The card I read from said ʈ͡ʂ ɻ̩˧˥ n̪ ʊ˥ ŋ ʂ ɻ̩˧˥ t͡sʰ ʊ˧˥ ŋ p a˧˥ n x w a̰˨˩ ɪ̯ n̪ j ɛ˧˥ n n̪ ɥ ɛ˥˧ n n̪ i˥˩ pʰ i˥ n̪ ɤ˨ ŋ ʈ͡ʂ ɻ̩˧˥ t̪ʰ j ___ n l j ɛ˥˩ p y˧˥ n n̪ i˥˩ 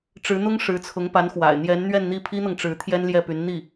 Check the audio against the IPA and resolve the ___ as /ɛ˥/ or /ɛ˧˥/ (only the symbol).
ɛ˥